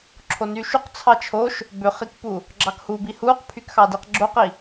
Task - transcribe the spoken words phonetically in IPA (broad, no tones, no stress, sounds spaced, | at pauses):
ǁʰ o n y ʃ u q t͡sʰ ɑ t͡ʃʰ o ʃ | b ø χ i k p u | ɡ͡ǁ ɑ k h u b i h u q pʰ y k x ɑ d i q ɡ͡ǁ o q i